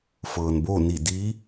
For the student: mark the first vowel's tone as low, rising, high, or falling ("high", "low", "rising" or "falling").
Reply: low